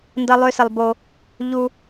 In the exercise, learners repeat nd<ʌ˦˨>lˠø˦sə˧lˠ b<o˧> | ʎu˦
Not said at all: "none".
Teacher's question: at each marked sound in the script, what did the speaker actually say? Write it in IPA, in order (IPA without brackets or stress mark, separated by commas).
ʌ˦, o˦